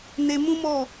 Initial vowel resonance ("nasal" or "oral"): oral